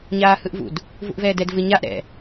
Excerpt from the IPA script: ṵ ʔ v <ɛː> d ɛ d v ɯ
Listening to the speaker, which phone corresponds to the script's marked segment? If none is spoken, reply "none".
ɛː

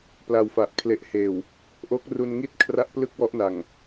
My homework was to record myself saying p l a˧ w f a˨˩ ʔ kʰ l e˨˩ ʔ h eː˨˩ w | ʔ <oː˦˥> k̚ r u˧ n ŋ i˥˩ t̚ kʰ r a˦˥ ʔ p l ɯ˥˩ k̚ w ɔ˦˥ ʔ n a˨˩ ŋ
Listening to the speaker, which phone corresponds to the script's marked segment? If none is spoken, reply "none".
o˦˥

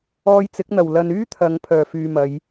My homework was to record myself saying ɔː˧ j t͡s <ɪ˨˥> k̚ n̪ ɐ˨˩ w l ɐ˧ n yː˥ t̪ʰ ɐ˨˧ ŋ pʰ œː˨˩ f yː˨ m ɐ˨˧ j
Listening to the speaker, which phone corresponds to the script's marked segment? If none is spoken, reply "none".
ɪ˨˥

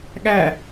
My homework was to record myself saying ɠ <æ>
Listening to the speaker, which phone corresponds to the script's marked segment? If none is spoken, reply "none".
æ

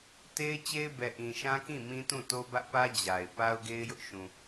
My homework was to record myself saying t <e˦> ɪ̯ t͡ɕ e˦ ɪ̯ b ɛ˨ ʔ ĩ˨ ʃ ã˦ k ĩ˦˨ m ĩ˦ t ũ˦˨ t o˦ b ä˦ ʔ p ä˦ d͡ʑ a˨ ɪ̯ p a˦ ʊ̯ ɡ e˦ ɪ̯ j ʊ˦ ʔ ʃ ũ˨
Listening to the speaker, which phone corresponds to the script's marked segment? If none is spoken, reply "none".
e˦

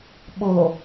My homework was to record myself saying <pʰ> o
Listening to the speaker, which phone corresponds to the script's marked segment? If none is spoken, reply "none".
ɓ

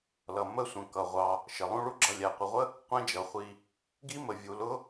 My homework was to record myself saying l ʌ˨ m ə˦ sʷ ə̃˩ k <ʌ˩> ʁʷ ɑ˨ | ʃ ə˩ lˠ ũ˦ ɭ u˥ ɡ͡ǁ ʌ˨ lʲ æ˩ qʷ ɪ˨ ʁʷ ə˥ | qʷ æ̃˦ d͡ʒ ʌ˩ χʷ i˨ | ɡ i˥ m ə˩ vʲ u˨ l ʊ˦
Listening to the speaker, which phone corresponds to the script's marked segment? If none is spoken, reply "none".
ʌ˩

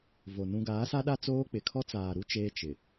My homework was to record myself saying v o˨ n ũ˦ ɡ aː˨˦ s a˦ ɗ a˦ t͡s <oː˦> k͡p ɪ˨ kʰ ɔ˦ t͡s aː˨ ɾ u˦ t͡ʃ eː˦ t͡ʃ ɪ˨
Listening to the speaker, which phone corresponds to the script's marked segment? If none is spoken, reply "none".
oː˦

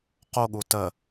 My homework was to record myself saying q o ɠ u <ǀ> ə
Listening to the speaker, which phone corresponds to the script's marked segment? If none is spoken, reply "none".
t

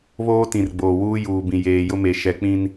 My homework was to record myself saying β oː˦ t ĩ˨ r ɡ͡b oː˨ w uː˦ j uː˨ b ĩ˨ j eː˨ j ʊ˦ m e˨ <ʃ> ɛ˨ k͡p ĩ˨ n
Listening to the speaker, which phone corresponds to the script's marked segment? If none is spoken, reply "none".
ʃ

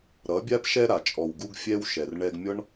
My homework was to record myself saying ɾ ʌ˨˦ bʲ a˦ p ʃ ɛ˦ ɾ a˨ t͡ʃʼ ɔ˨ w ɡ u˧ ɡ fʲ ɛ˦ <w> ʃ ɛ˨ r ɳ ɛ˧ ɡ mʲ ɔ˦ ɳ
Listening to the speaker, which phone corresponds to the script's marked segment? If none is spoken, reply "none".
w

